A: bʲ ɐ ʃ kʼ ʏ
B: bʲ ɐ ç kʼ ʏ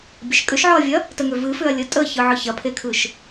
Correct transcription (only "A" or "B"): A